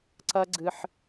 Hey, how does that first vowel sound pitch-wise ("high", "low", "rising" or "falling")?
high